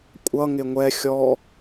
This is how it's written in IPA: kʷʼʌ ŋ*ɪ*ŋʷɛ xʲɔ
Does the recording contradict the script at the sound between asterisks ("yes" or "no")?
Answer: no